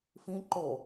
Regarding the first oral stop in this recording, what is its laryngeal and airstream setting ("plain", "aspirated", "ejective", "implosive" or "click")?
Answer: click